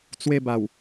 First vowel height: mid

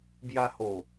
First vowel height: low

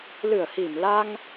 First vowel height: high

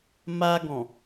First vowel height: low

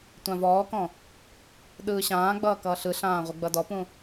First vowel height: low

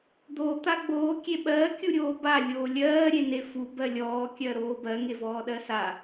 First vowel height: mid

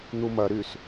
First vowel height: high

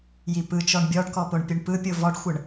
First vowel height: high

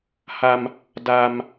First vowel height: low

